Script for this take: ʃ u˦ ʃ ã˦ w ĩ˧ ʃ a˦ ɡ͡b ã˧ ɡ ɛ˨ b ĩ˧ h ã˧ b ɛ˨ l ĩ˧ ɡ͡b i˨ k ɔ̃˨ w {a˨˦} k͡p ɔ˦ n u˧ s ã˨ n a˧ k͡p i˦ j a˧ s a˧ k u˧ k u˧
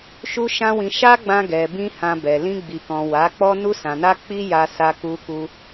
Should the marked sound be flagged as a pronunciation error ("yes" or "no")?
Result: no